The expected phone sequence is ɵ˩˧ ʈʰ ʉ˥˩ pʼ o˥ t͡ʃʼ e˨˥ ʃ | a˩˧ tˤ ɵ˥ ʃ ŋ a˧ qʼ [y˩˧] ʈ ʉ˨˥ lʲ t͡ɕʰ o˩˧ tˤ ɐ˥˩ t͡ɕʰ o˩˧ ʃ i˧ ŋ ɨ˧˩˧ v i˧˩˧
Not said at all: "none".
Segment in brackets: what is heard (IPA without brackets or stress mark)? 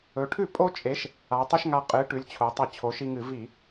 ɨ˩˧